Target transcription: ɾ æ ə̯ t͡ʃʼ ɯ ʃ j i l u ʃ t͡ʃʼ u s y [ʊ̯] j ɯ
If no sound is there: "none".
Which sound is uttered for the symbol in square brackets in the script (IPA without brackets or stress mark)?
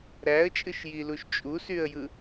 ə̯